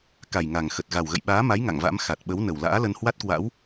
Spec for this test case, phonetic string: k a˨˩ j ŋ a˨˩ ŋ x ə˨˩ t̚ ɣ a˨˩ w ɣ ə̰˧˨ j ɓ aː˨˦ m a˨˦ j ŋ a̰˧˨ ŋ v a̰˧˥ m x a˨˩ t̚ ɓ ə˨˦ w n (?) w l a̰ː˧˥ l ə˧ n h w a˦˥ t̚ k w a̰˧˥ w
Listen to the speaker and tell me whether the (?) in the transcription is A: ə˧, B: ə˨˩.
B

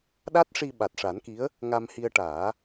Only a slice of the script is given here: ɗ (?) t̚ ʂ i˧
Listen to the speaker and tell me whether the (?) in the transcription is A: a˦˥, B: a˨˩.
A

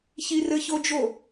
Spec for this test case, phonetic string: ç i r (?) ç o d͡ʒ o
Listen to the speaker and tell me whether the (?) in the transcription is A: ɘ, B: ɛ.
A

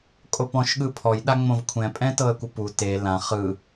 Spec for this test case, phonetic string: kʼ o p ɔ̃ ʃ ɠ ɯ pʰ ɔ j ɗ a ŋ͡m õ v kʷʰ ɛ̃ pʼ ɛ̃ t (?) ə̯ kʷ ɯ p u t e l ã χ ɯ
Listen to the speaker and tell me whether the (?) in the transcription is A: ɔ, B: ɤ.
B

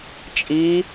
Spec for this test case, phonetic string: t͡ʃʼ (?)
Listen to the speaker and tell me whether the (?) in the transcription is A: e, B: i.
B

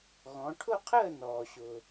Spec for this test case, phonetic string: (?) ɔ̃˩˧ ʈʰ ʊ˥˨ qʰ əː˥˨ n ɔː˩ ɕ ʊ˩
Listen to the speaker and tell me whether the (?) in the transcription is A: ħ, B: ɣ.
B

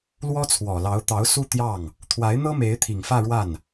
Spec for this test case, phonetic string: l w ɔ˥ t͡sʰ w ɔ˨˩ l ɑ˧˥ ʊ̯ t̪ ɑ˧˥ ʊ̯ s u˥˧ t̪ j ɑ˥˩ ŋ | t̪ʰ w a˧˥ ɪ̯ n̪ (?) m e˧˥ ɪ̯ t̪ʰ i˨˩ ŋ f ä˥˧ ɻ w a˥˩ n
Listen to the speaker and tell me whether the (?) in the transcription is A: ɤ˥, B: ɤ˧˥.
A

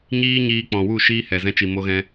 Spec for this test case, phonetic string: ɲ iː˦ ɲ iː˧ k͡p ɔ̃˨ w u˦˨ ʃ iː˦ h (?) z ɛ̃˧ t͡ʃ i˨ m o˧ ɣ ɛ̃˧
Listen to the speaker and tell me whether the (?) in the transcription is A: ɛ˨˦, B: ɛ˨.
B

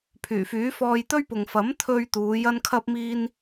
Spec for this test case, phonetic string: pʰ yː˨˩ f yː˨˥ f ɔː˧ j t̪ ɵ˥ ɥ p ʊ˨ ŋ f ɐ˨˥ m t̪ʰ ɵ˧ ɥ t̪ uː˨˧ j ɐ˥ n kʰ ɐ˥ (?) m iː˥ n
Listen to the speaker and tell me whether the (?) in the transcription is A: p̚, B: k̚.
A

